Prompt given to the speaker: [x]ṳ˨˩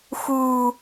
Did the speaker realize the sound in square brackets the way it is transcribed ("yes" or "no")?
yes